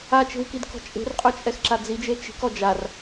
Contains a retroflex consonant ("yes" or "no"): no